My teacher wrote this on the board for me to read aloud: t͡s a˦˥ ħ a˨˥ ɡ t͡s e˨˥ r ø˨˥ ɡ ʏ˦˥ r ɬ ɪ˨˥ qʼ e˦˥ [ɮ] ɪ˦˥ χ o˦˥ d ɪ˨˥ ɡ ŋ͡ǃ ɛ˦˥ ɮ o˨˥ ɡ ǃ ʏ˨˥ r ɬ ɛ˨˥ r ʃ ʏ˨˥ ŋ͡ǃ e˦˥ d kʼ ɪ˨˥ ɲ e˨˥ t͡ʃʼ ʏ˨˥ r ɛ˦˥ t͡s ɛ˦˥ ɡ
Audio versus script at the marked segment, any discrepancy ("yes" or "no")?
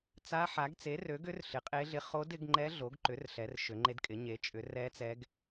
no